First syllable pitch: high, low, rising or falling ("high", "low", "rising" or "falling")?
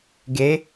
rising